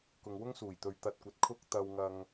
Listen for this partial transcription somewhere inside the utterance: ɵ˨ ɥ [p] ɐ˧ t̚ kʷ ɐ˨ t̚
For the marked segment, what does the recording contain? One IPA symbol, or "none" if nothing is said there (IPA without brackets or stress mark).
t̪